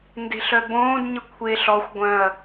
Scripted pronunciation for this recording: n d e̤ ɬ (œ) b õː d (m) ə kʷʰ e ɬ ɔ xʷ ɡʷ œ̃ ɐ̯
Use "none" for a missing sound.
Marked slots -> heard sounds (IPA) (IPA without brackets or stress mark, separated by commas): œ, ɲ